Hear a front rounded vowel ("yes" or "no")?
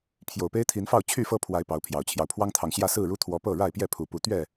yes